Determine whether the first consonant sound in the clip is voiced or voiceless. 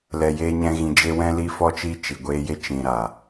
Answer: voiced